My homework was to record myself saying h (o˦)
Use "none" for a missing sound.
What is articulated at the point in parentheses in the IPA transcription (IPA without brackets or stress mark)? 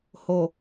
o˨